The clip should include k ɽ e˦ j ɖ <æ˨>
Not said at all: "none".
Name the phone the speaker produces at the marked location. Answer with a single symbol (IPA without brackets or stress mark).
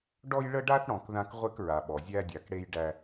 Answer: æ˦